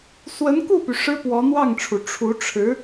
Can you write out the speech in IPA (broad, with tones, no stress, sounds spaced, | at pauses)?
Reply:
s w ə˧˥ n k u˥˩ p y˩ ʂ ɻ̩˥ p w ɔ˧˥ n̪ w ɑ˥˩ ŋ ʈ͡ʂʰ u˩ ʈ͡ʂʰ u˧˥ ʈ͡ʂʰ ɻ̩˧˥